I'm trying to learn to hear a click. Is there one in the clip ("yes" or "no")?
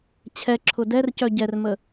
yes